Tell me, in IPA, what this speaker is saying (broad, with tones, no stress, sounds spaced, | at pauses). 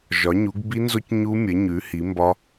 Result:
ʒ ɒ˩˥ ɲ u˩˥ ɡ b i˦˥ n z o˦˥ c ɲ u˦˥ mʲ ə˩˥ ɲ ʉ˩˥ h i˩˥ m b ɒ˦˥